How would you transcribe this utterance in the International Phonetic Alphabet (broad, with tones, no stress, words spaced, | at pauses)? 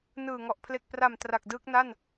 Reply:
nɯː˨˩ŋɔ˨˩ʔ pʰle˨˩k̚pra˨˩m tra˨˩k̚dɯː˦˥k̚na˥˩n